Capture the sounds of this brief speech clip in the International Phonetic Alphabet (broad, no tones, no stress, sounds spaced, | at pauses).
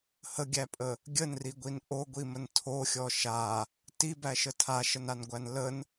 h ə ɡʲ æ pʼ ə | ɡʲ ə n r i ɡʷ i n ʔ o ɡʷ i m ə n tʰ o xʲ ɔ ʃ a | t i b æ ʃ ə tʰ a ʃ ə n a n ɡʷ æ n l ə n